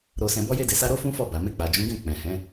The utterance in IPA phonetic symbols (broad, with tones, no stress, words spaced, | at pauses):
ɾo˨sɛ̃˨ bɔ˧je˧de˨sa˧ ɾo˦fũ˦fɔ˦˨ ba˨me˧k͡pa˨d͡ʒũ˨˦ ɡɛ̃˦˨ k͡pɛ̃˨hɛ̃˨˦